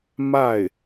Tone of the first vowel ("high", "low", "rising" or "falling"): falling